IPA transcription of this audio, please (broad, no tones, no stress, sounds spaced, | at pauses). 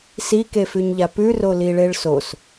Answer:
s i k e f ʉ ɲ ʎ a p ʉ r o l i ɭ e ɭ s o s